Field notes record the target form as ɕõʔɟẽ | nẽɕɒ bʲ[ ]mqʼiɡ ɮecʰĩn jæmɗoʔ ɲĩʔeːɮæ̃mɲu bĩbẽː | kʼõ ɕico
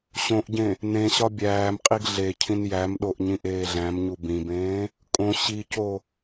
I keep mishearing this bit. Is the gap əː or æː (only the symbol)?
æː